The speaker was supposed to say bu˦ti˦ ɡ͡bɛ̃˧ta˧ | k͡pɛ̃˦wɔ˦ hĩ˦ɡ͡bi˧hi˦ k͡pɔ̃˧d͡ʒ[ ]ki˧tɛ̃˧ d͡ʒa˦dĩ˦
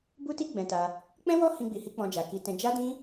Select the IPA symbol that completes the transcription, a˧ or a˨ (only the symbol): a˨